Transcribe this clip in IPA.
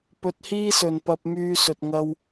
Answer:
p ɵ˧ t̚ h iː˥ s ɵ˨ n p ɐ˧ p̚ m yː˧ s ɵ˨ t̚ ŋ ɐ˧ w

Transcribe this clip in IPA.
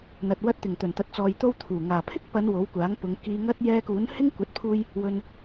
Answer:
n̪ ɐ˨ t̚ w ɐ˧ t̚ t̪ ɪ˨˩ ŋ t̪ ɵ˨˩ n t̪ ɐ˨˥ t̚ t͡s ɔː˨ j t̪ o˥ w t̪ʰ uː˨˩ ŋ aː˨˩ pʰ ɪ˥ k̚ p ɐ˨˧ n w o˨˥ w kʷ aː˨˥ ŋ p ʊ˨˧ ŋ k iː˧ ŋ ɐ˥ t̚ j ɛː˧ k uː˨˥ n h ɪ˥ ŋ kʷ ɐ˨˥ t̚ pʰ uː˧ j | w ɵ˧ n

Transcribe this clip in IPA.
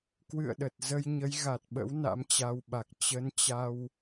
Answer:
k w ɨ̰˧˨ ə̯ ɗ ə˨˩ t̚ z ə˧ j ɲ ə˨˦ j ɣ a˨˩ t̚ ɓ ə̰˧˥ w n a̰˧˥ m t͡ɕ a˧ w ɓ a˨˩ k̚ t͡ɕ ə˨˦ n t͡ɕ a˧ w

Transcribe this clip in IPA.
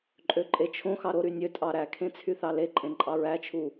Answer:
ǃʼ ø ǃʼ e t͡ʃʰ õ x ɑ ɾ o ɾ y nʲ ø tʼ ɑ ɾ æ kʰ ẽ t͡sʰ y θ ɑ l e ǃʼ ẽ ǃʼ ɑ ɹ æ t͡ʃʰ u

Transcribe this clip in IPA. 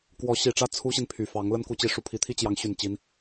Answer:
k w ɔ˧˥ ɕ i˨˩ ʈ͡ʂ ä˥˩ t͡sʰ u˥ ɕ i˨ n pʰ y˨˩ f ɑ˧˥ ŋ l ə˥ n k u˧˥ t͡ɕ i˧˥ ʂ u˨˩ pʰ i˧˥ t̪ʰ i˥ t͡ɕ j ɑ˧˥ ŋ ɕ y˨˩ n t͡ɕ i˧˥ n

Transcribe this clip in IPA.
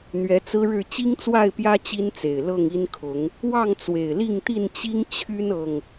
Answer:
n̪ ɥ ɛ˨˦ t͡s ɹ̩˦ ɻ ɻ̩˥˨ t͡ɕ i˦ ŋ t͡s w a˥˨ ɪ̯ p j ä˦ t͡ɕ i˦ n t͡s e˨˩ ɪ̯ l ɤ˥˨ ŋ i˦ n kʰ ʊ˨˦ ŋ | w ɑ˥˨ ŋ t͡s w e˨˩ ɪ̯ l i˥˨ ŋ t̪ i˥˨ n t͡ɕ i˦ ŋ t͡ɕʰ y˦ n ɤ˨˩ ŋ

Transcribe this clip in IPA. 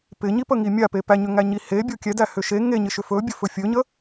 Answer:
p ɪ ɲ i p ə ŋ i mʲ a p e p æ ɲ ʏ ŋ æ ɲ i h e bʲ o kʲ ɛ d æ h ʏ ʃ e ŋ e ɲ ɪ ʃ ʏ f ɵ bʲ ɵ f ɵ fʲ ɵ ɲ ə

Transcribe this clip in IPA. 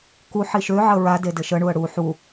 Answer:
k u ħ i ʃ ø ʕ ə ɹ a d e d ɘ ʃ ə ɳ u ə̯ ɽ u ħ u

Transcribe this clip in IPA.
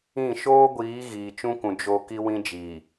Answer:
ĩ˦˨ ʃ oː˦ ɡʷ iː˨˦ ɣ iː˨ t͡ʃ ũ˦ k ũ˨ d͡ʒ o˦ k i˦ w ĩ˦ d͡ʒ iː˨

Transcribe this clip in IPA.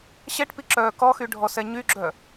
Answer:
ɕ ɛ ʈ p i ǁ œː k ɔ x y ɖʱ ɔ s ɛ ɲ y ɡ͡ǁ œ

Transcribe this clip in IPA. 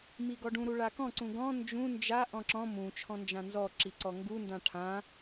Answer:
m i ɡ ɔ ɖ ũ ɾ u ɭ a k ɔ̃ ǀ ũ ɡ ɔ̃ n d͡ʒ ũ n d͡ʒ a ʔ ɔ̃ ǁ ɔ̃ m ũ t͡ʃʰ ɔ̃ n d͡ʒ ã n z ɔ ǁ i ǀ ɔ ŋ ɡ u n d ã ʈʰ ã

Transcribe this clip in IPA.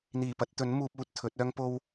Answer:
n̪ iː˨˩ p ɐ˧ t̚ t̪ ɵ˨˥ n m uː˧ p̚ uː˨ t̚ t̪ʰ ɵ˨˥ t̚ œː˥ ŋ p o˥ w

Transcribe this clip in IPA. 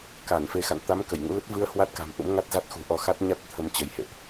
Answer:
k a˧˩ n f e˨˦ x a̰˧˨ n t̪ a˨˦ m k ə˧˩ j ŋ ṵ˧˥ l ə˦˥ t̚ v ɨ˧ ə̯ h w a˦˥ t̚ k a̤˨˩ m ʔ ṵ˧˥ m ŋ a˦˥ t̚ z a˦˥ t̚ x ṳ˨˩ ʔ ɔ˧ x a˦˥ t̚ ɲ a˦˥ t̚ t̪ʰ ə˧ m t͡ɕ ə˨˦ j h ḛ˧˨ ʔ

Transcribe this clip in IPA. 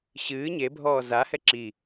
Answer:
ɕ ɨː ɲ e bʱ ɔː z a h ɛ ǁ i

